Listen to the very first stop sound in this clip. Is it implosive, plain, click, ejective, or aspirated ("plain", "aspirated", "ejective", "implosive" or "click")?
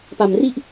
plain